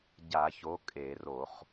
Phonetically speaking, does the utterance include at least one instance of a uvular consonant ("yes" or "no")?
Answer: yes